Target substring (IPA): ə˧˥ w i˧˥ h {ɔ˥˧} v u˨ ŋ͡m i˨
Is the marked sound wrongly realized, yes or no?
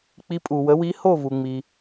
yes